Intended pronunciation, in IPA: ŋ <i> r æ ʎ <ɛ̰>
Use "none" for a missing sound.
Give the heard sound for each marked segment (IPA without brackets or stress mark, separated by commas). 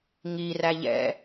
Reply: i, ɛ̰